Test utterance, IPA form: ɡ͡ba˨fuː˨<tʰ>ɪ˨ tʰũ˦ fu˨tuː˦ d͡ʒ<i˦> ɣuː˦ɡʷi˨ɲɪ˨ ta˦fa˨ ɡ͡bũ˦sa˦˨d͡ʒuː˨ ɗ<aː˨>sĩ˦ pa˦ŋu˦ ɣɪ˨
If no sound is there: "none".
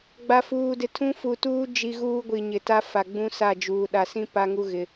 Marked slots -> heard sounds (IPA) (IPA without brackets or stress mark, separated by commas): d, i˦, a˨